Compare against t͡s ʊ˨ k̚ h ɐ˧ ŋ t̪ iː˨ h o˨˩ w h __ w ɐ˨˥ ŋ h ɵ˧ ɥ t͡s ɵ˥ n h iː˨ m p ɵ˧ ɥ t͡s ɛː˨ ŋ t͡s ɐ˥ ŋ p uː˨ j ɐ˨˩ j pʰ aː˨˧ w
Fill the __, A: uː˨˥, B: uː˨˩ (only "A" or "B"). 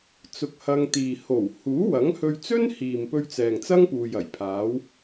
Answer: A